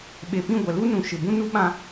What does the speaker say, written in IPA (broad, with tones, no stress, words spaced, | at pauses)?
ɓe˨pĩ˦˨ ɡʷɛ˨lu˦nũ˨ ʃɪ˦ bũ˦nu˦ ɓã˦